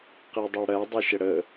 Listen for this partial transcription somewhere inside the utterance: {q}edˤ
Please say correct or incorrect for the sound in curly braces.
correct